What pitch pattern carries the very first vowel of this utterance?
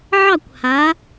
falling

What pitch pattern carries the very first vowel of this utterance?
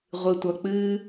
low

